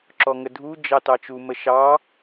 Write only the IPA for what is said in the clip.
ǁɔŋədʱu d͡ʒɑtɑt͡ʃu məʃɑ

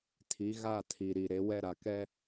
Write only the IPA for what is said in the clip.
tʰi˨˦ɣa˦˨ tʰi˨ ɾi˨ɾe˨˦ wɛ˦ɾa˨ kɛ˦

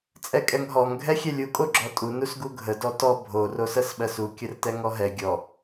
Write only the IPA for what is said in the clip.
t͡sʼɛkʼɛŋɦɔŋ ɡʱɛxʲɛlʲu kʼoɡ͡ǁɔtʼu nusɡuɡʱə dɔtɔ bʱo rosɜsɓɜsu kʲərtɛŋɔɦɛ ɡʲɔ

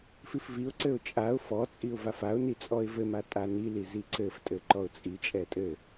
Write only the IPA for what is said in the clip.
fifviʊ̯ǀɘʊ̯ t͡ʃʼaʊ̯ fɔt͡sʼiʊ̯ vafaʊ̯ni t͡sʼɔɪ̯vɘma tʼanili ziǀɘftʼɘ ǃɔʊ̯t͡sʼit͡ʃʼɛ tʼɘ

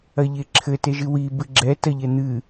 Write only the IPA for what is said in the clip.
ɐʎeǁʰɘ teʒɨwi bɨɡ͡ǁɛ tɐʎɛn̪ɨ

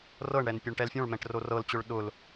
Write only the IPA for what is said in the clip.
rɤɳɽɛn pʲoɳʈɛlfʲõɭmɛ̃ʈ rorɤlt͡ɕʊɭ ɗʊl

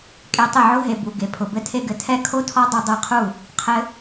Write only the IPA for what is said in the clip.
kʼe˧tˤɘ˦˨ʕʊ˦ ɦe˨ bu˨ ɡe˨pʰʊ˨ bɘ˧tʰe˧ɡɘ˨ tʰɛ˧kʰo˧tʰɔ˧ dˤɘ˧ dˤe˧qʰu˦˨ | qʰɘ˧

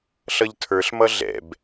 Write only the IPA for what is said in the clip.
ɬʌʎtʰə˞ɬmʌ ɮɛ̰b

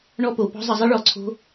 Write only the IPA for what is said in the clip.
ɳɔ˧po˨pɔ̤˧ zˤə˧zˤi˦ɭɔ˧ǀʰo̤˦

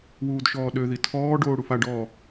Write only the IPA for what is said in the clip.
wuːdʃɔːɗøði tʰɔːɖoː ɽufaɖɔː

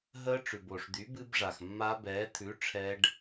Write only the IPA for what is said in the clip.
ɦəː˦˥ʈ͡ʂʉ˩bo˩ʂd̪y˨˥ bɨ˦˥bʐa˩xmːa˦˥bɛː˨˥ t̪ʰʉ˨˥ ʈ͡ʂʰɛ˦˥ɖ

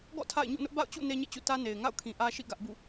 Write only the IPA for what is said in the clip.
ɡɔ̰˦˨ tʰa̰˦˨ɪ̯ ɲṵ˦˨nʊ˦ʔ ba̰˦˨ʊ̯t͡ɕṵ˦˨ ne˦ɲḛ˦˨t͡ɕṵ˦˨ tä˦ne˨ɪ̯ ŋa̰˦˨ʊ̯kʰĩ˨ʔä˦ʃḭ˦˨ ɡä˦ʔbṵ˦˨

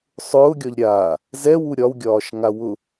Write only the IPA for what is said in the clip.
sˤʊːɡʲɒʎ ɾʲaː | zɛwu ɾʲɒwɡʲɒːʃŋa wʊ

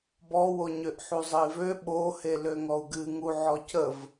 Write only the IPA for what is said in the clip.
bɔwoɲøʔ ħuzˤəi̯vø ɓohe løŋɔu̯ɡɨ ŋu ʕɔcəv

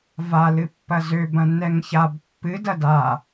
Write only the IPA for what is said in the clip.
va lɨpːɐzø bɐ̃nːɛŋçab pːɨ dɐda

